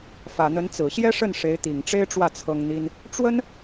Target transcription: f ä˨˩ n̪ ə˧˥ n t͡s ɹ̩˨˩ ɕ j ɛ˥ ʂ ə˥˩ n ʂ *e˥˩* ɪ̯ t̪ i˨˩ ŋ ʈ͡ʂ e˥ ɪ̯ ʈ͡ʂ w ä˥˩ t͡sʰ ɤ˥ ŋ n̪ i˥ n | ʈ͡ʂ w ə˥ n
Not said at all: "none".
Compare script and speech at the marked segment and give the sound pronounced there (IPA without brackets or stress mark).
e˧˥